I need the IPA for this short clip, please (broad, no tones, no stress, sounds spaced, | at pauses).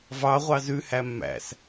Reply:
v ɑ ʁʷ ɑ z ʉ h æ mː æ̰ s